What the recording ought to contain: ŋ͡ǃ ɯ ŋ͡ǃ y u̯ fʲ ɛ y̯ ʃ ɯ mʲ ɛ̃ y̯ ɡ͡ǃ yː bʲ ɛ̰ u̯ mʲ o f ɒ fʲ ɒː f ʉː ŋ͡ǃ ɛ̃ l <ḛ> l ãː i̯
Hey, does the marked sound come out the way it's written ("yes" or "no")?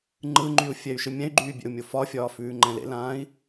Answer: yes